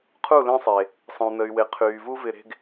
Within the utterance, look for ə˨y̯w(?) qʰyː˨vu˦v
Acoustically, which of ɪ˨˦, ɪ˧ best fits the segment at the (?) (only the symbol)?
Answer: ɪ˨˦